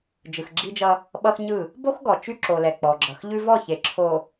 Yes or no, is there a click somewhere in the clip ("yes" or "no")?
yes